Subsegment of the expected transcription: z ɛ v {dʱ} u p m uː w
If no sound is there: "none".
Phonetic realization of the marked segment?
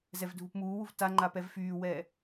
dʱ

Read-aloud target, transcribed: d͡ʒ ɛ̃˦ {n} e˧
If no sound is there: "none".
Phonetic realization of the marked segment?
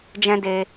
d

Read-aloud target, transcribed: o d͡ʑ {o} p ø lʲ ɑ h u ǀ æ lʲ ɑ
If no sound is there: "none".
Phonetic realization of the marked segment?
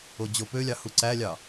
o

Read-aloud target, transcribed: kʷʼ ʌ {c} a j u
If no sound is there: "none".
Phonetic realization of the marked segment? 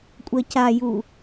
c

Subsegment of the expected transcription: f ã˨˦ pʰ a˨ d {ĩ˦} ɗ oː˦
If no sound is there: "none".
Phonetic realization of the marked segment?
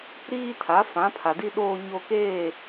i˦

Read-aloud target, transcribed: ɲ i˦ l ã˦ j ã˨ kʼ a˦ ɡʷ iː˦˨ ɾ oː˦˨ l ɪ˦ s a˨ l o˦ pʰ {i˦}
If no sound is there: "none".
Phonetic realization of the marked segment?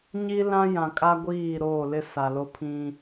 ĩ˦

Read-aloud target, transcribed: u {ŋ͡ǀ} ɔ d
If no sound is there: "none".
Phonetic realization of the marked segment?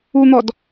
n̪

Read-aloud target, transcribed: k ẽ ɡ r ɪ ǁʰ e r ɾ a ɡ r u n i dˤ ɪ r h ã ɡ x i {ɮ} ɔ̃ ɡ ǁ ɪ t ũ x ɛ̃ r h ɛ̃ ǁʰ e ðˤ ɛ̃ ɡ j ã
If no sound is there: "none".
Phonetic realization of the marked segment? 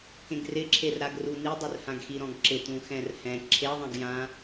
ɾ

